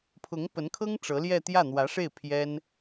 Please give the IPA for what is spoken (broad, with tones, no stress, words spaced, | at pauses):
pʰʊ˧˥ŋpə˧˥nkʰɤ˥ŋ ʈ͡ʂɤ˧˥ljɛ˥˧ t̪jä˥˩n̪wä˧˥ʂe˥˩ɪ̯ pʰjɛ˥n